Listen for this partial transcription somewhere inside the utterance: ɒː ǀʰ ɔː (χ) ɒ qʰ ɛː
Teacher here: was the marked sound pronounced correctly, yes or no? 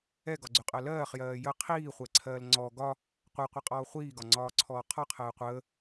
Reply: no